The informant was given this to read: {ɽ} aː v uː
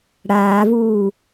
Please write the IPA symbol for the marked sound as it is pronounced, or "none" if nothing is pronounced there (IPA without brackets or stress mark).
ɽ